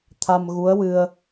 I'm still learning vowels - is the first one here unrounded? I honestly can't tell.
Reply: yes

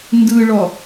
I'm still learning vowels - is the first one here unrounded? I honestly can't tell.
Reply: yes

